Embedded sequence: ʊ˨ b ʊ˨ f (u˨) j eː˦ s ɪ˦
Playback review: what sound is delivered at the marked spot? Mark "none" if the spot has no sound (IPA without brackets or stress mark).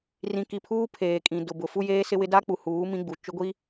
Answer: u˦